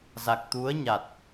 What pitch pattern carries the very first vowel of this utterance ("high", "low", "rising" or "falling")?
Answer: low